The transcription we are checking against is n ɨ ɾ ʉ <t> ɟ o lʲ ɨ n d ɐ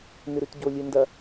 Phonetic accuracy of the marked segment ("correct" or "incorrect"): correct